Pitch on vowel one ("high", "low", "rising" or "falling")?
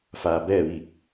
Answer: low